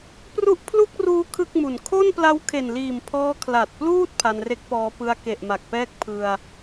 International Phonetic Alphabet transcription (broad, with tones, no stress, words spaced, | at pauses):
pru˦˥ʔpʰlu˥˩k̚ruː˦˥ kʰɯ˥˩k̚mu˨˩n kʰo˥˩n pla˦˥wkʰe˨˩nliː˨˩mpʰɔː˧ kʰla˨˩t̚pluː˥˩t̚ pʰa˧nre˦˥k̚pɔː˦˥ pɯ˧a̯ke˨˩ʔ ma˨˩k̚pɛː˥˩k̚ pʰɯ˧a̯